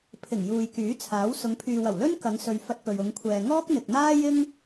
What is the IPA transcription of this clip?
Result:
pʰ ɪ˨˩ ŋ j uː˨ j k yː˨˥ t͡sʰ aː˨˥ w s ʊ˨˧ ŋ pʰ yː˨ w ɐ˨˩ w l ɵ˥ n k ɐ˨˧ ŋ s ɵ˨ ɥ f ɐ˧ t̚ p ɵ˨ ɥ ʊ˨˧ ŋ kʷʰ ɛː˨ ŋ ɔː˥ k̚ n̪ ɪ˨ k̚ n̪ aː˥ j ɪ˥ ŋ

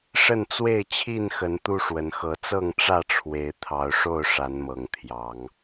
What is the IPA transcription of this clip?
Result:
ʂ ə˥˨ n t͡s w e˥˨ ɪ̯ t͡ɕʰ i˥˨ n x ə˨˦ n t̪ u˦ ʂ w ə˨˦ n x ɤ˨˦ t͡s ɤ˥˨ ŋ ʈ͡ʂ ä˥˨ ʈ͡ʂʰ w e˨˦ ɪ̯ t̪ʰ ɑ˨˦ ʊ̯ ʂ o˥˨ ʊ̯ ʂ a˨˦ n m ɤ˨˩ ŋ t̪ʰ j ɑ˨˦ ŋ

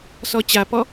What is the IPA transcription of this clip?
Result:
s ɔ t͡ɕ a p ɔ

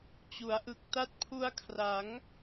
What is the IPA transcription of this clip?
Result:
t͡ɕ u˩˦ a̯ ʔ ɯ˨˩ k̚ t a˦˥ t̚ pʰ u˧ a̯ kʰ r a˩˦ ŋ

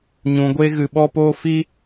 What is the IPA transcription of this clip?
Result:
ɲ ũ˧ ɡʷ e˦ ɣ ɨ˧ ɓ ɔ˦ p oː˦ f i˦

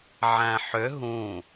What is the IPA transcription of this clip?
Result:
ʕ æ̃ ħ ʏ ɦ ũ

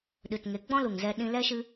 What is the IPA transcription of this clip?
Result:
ɗ ɨ˨ t ŋ e˨˦ ɡ͡b ɔ̃˦ l u˨ ŋ z ɛ˧ ɗ ĩ˧ l ɛ˦ ʃ ɨ˦

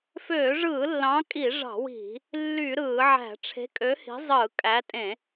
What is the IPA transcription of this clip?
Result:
f øː˧˩˧ ʐ ɯː˧˩˧ lː ɑ̃˨˦ kʼ i˧˩˧ ʐ ɑ̤˧˩˧ w i̤˧˩˧ | lː y˧˩˧ ɾ ɯː˧˩˧ ʕ æ̤˧˩˧ ʈ͡ʂʰ e̤˨˦ kʼ ø˨˦ h i̤˨˦ zˤ ɯː˧˩˧ kʼ æ˨˦ tʼ ẽ˧˩˧

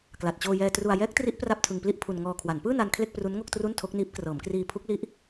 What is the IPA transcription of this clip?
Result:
k l a˨˩ t̚ t͡ɕ oː˧ j ɛː˧ t r u˧ a̯ j ɛː˦˥ k̚ t r i˦˥ ʔ p r a˥˩ p̚ tʰ ɯ˧ ŋ p l i˥˩ ʔ pʰ u˧ n ŋ ɔː˧ kʰ w a˩˦ n p ɯː˥˩ n a˧ n kʰ l e˥˩ k̚ p r u˦˥ n ŋ o˥˩ k̚ t r u˥˩ n tʰ o˦˥ k̚ n iː˦˥ p̚ k r ɤː˩˦ m k r iː˧ pʰ u˦˥ k̚ l i˦˥ ʔ

